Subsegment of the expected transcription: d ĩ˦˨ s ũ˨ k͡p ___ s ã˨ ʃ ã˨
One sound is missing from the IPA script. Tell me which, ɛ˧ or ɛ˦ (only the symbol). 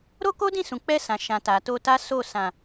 ɛ˧